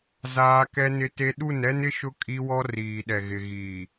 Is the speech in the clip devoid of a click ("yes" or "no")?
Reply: yes